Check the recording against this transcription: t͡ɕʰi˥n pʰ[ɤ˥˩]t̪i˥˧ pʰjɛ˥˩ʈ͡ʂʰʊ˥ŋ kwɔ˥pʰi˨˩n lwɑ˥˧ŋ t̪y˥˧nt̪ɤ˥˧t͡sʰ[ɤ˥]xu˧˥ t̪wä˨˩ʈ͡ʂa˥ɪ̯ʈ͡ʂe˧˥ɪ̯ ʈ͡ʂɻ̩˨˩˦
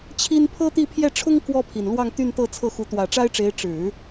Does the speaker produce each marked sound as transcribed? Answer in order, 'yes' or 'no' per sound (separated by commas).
no, no